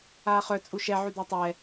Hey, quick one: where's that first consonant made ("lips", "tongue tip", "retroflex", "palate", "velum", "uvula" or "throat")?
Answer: uvula